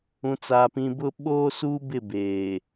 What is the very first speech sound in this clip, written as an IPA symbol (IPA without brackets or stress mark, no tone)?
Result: ũ